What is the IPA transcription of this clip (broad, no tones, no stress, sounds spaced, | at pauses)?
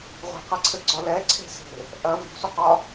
ʁʷ e̤ q a ǀʰ ɘ ɡ͡ǀ ɒ l ɛ ǀʰ e̤ s e̤ | ʔ ɐ v i̤ sʷ ə q ɒ